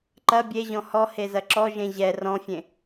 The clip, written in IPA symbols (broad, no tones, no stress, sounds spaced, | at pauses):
ǃ ɐ bʲ e ʑ ɔ̃ h ɔ h e z ɐ ǁ ɔ ʒ ẽ ʑ ɛ r ɔ̃ fʲ ẽ